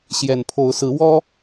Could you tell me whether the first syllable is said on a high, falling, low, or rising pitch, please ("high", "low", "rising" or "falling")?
low